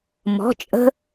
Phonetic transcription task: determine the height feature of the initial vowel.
mid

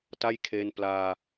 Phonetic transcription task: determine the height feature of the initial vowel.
low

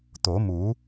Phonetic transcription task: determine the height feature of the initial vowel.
mid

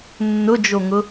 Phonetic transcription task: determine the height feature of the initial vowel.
high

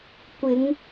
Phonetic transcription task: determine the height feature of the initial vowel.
high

